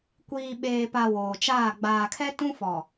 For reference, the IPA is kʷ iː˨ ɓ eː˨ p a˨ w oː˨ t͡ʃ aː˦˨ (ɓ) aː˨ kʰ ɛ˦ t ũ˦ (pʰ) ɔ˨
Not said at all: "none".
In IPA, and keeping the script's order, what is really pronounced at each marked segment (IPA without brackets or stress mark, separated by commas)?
ɡ͡b, f